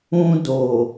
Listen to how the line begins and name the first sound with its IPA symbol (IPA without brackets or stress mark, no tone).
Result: ũ